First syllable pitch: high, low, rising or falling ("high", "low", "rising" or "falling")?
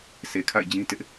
low